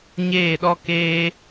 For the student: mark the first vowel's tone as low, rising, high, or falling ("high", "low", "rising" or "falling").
falling